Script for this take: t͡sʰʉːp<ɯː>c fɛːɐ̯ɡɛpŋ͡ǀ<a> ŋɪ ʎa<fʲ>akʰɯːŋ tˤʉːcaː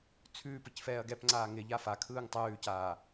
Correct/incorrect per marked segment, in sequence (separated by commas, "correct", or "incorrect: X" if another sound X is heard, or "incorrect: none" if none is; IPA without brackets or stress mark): incorrect: ɯ, incorrect: aː, incorrect: f